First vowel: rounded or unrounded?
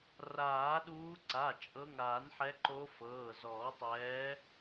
unrounded